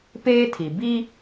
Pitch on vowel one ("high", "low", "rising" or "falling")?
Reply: high